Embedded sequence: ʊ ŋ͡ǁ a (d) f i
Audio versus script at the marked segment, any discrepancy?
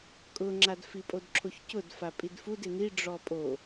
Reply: no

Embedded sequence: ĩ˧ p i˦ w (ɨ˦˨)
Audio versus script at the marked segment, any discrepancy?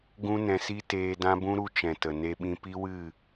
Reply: no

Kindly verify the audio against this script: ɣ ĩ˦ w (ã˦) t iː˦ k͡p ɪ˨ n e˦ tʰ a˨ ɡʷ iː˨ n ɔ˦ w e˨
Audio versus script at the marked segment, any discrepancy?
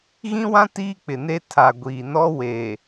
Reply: no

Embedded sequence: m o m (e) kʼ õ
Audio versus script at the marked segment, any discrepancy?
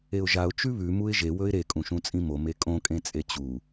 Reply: no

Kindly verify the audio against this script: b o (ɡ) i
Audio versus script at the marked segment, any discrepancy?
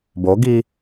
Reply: no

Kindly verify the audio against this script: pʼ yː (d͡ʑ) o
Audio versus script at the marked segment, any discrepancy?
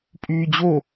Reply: no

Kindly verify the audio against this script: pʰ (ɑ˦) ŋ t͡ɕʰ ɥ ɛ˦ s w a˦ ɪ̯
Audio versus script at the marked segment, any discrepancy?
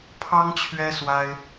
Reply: no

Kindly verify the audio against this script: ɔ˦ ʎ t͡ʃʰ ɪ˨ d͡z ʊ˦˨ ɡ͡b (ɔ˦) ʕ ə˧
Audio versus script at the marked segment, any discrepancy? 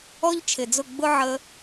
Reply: yes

